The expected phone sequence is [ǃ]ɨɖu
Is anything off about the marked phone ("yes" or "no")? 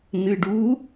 yes